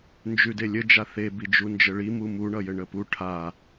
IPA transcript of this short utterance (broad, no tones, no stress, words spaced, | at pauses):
nd͡ʒʉdelʲɘ d͡ʒaθe bid͡ʒund͡ʒəɭi mumu ɳʌjɘɳəpu ʈʰa